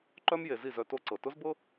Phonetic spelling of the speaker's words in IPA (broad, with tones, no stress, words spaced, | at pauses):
ǃœ˦mje˨ zi˦˨zœ˧ to˦ǀɤ˨ tʊ˦zbɤ˦